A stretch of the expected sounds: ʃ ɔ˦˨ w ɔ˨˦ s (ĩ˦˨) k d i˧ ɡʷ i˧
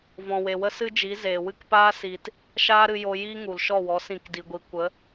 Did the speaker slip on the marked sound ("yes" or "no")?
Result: no